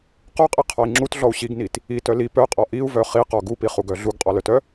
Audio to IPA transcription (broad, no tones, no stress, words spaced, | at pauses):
qɔqʼiqʰɔi̯ ŋ͡ǁutɮɔu̯ ɕiɡnit | itœ li pœqʼɔ ʔiu̯vœ χiqɔ ɡupiχuɡœ ɮuɡqʼɔlœtœ